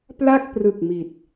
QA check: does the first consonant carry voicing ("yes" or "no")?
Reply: no